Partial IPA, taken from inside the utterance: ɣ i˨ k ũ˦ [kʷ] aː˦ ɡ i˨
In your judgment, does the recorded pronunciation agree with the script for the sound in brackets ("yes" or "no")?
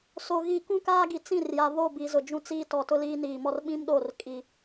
no